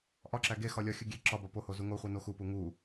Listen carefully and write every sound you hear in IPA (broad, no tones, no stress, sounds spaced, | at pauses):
ʔ ɒ ǁ æ ɡ e x ɒ lʲ ɒ xʲ u ɡʲ e ǁ ɒ b ɒ p o h o z u ŋ o χʷ e n o x u p u ŋ u